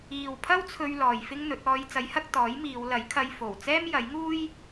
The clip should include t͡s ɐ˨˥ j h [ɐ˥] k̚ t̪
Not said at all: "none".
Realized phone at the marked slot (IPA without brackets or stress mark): ɐ˧